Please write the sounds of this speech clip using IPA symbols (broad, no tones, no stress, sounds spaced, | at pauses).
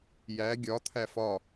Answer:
j æ ɡʲ ɒ t̪ʰ æ f ɒ